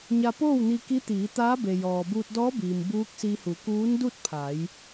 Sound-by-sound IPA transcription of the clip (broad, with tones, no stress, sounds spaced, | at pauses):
ɲ a˧ p oː˥˨ w n i˧ k i˧˥ t̪ iː˩˧ t̪ aː˧˥ b e˩ j ɔː˩ b uː˧ t̚ d ɔː˧˥ b iː˩ m b uː˧˥ k̚ s i˧ h u˩˧ k uː˧˥ n d u˥˨ t̚ pʰ a˩˧ j